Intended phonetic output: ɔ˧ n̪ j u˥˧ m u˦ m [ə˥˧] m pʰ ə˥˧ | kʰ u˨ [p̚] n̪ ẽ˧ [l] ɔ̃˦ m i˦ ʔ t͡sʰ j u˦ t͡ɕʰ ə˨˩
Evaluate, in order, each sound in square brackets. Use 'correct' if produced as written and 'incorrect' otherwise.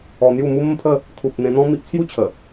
correct, correct, incorrect: n̪

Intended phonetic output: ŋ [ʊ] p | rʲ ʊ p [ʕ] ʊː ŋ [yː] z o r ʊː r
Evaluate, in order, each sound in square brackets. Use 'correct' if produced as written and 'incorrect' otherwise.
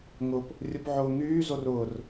correct, correct, correct

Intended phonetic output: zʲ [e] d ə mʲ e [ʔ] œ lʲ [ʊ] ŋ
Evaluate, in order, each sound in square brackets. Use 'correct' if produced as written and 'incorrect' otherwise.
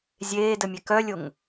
incorrect: eː, incorrect: k, correct

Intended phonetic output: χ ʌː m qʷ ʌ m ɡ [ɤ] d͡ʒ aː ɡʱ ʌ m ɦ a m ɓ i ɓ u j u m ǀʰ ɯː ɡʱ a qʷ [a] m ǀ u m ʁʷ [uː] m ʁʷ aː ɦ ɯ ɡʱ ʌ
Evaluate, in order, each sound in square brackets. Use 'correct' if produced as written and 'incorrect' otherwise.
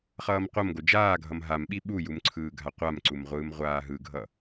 incorrect: o, correct, incorrect: ɯː

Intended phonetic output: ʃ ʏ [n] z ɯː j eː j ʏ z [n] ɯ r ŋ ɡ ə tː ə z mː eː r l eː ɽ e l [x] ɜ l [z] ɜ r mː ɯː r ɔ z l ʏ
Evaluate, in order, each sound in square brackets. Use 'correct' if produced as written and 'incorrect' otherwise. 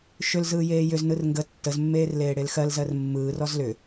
incorrect: l, correct, correct, correct

